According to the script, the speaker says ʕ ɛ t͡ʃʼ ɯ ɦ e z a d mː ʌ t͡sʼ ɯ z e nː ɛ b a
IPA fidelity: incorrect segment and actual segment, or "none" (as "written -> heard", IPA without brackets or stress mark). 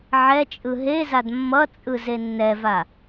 b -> v